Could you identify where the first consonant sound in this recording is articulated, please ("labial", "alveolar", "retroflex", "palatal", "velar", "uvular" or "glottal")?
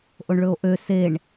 glottal